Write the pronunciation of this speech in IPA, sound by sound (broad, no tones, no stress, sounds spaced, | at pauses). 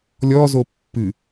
lʲ ɔ z o pː ɨ